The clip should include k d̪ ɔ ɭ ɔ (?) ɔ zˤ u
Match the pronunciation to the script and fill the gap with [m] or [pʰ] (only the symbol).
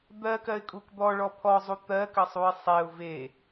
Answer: pʰ